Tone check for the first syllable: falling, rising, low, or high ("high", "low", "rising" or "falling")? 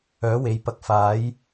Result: rising